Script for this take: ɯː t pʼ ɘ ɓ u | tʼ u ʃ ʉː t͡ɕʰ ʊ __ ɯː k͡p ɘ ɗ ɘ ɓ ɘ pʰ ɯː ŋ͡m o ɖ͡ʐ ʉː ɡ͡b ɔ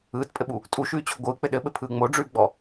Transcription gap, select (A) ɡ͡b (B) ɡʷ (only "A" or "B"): B